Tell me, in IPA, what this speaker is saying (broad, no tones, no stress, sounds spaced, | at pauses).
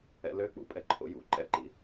ɛ̰ l ø k͡p ṵ pʼ ɛ ǃʰ o̰ j ṵ ǃ ɛ̰ ǃ ḭ